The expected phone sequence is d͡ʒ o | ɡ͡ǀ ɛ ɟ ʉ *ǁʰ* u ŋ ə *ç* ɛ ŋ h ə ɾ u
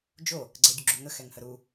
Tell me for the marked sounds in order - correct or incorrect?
incorrect, incorrect

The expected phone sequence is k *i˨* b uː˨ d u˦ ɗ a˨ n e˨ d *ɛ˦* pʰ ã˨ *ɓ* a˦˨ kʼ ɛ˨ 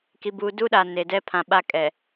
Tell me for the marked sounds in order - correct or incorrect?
correct, correct, correct

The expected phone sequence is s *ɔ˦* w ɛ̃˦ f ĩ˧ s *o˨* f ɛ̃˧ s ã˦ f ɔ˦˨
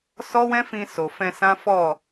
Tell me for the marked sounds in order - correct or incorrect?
correct, correct

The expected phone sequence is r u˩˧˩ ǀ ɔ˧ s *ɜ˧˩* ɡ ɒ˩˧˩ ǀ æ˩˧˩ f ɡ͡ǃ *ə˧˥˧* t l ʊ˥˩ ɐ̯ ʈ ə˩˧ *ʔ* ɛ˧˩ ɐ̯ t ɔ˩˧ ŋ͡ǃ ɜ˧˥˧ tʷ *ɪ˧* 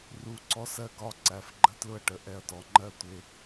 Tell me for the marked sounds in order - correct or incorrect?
correct, correct, correct, correct

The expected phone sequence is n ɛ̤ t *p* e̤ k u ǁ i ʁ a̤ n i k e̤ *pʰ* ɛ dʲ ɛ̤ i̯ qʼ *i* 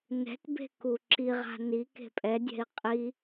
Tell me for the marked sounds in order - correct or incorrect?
incorrect, incorrect, correct

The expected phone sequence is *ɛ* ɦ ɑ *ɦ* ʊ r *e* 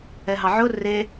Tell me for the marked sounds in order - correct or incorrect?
correct, incorrect, correct

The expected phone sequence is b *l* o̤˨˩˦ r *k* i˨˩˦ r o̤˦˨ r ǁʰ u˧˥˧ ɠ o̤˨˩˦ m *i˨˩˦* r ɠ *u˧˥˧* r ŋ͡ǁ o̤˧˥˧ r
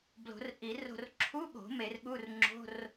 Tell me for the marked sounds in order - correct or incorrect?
correct, incorrect, incorrect, correct

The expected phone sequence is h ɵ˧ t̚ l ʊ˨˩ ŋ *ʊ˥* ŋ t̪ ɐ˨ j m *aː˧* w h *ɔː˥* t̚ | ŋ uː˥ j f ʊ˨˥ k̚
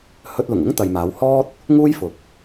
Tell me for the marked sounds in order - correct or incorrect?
correct, incorrect, correct

